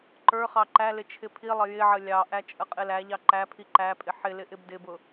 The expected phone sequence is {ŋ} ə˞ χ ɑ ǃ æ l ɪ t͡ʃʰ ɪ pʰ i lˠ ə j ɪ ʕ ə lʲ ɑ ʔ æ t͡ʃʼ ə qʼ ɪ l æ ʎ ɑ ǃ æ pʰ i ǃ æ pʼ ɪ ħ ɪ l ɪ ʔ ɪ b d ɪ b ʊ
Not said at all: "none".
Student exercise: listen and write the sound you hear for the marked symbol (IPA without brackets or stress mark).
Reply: ǃ